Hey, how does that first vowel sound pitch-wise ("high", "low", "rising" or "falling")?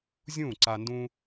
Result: falling